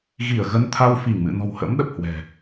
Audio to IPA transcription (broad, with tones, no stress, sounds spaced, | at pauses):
ɣ i˧˩ ə̯ ɣ ə˧ n t̪ʰ a˧ w f i˧˩ ŋ m ɨ̰˧˨ n ɔ̤˨˩ w h ə̰˧˥ m ɗ ə˨˩ p̚ h w ɛ̤˨˩